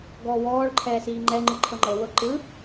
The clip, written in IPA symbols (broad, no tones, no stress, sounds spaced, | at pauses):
ɡ ɔː w ɔː ɭ ǃʰ ɛː s iː ŋ͡ǃ ɛ ŋ͡ǃ ɯ ǃʰ ɤ ŋ͡ǃ ɤ w ɤ ǃ ɯ